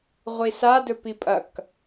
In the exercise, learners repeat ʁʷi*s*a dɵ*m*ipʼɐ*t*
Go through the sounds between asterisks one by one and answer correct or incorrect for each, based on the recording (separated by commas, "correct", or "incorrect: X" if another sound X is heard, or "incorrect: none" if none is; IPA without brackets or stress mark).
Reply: correct, incorrect: p, incorrect: k